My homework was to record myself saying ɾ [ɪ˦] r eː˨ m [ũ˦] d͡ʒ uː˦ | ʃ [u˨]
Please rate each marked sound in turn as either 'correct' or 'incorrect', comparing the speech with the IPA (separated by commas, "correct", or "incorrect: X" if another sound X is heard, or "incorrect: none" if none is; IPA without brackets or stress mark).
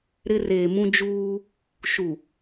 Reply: correct, correct, correct